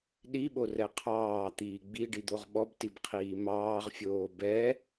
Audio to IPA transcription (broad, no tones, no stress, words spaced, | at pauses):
ɗiɓorɛ qʰɑːt̪iː ɡ͡biɖid̪oʁ ɓɔbtibqʰiː mɑːʁfʲoː bɛ